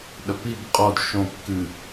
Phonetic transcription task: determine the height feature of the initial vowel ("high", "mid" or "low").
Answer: low